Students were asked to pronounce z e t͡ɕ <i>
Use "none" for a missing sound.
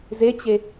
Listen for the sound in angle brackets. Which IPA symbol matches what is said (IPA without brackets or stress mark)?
e